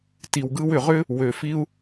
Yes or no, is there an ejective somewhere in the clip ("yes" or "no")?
no